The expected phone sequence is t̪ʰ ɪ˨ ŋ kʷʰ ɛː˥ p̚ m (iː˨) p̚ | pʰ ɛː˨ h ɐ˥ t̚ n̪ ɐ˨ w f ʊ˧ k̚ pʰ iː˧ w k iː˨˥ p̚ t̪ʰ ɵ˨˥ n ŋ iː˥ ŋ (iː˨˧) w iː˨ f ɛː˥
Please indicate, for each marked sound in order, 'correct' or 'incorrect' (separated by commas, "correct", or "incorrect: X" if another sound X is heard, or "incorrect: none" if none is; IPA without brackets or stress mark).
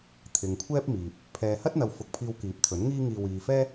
correct, incorrect: iː˧